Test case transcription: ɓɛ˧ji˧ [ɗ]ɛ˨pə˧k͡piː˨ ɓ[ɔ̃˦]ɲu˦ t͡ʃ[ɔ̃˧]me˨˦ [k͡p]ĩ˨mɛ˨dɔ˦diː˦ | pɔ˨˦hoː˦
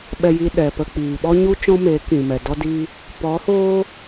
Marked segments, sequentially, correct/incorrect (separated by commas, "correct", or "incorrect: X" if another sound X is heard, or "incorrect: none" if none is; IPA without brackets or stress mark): correct, incorrect: ɔ˦, incorrect: ɔ̃˦, incorrect: k